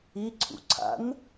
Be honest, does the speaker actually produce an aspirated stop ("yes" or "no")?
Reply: yes